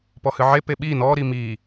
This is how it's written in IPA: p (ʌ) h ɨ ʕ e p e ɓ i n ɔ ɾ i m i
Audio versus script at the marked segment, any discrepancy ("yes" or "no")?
yes